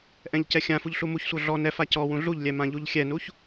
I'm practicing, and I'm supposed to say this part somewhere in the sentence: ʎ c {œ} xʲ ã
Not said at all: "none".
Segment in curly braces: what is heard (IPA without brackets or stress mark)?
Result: ɛ